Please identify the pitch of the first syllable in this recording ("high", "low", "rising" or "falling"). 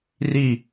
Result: falling